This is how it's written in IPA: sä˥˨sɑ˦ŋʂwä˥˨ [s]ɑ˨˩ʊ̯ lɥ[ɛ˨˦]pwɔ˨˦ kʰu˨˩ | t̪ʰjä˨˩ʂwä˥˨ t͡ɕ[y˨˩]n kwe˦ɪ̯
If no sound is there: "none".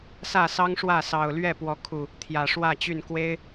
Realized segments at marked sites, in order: s, ɛ˥˨, y˥˨

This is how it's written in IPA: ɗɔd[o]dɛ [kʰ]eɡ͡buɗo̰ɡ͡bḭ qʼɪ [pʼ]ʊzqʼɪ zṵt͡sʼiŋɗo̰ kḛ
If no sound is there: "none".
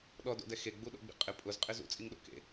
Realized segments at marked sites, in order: o̰, x, pʼ

